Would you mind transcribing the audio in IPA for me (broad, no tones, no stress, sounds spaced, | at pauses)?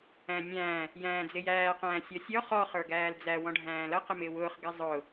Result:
æ̃ nʲ æ̃ː | j æ̃ː d͡z ɪ j æː q æ̃ː sʲ ɔ sʲ ɔ χ ɔ χ ə˞ ɡ æː l d͡z æ w ɔ̃ ɖʱ æ̃ː l ʌ q ɪ m ɪː w ʊː χ ɡ ɪ zˤ ʊː